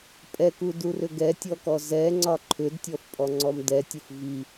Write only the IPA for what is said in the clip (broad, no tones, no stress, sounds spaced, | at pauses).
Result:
pʼ ɛ k u d u r ʏ ɡ ɛ tʲ ɔ k ɔ z ɛ ŋ͡ǀ ɒ ǃʰ ʏ d tʲ ɔ f pʼ ɔ ŋ͡ǀ ɔ m d ɛ tʲ ə f v i